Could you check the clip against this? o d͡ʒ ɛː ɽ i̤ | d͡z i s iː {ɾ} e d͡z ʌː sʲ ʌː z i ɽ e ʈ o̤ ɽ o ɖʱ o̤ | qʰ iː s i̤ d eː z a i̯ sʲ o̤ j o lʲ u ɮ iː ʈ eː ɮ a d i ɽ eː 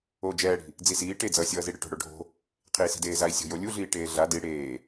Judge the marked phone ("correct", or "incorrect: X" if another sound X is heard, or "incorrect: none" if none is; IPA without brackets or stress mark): incorrect: ʈ